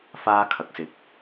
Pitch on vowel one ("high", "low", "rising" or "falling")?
high